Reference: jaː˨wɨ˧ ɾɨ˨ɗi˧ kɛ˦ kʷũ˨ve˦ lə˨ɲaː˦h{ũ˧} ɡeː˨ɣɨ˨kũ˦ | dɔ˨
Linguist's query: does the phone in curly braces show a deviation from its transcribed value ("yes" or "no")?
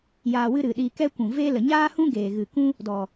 yes